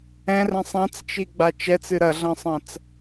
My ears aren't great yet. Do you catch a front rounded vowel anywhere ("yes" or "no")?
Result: no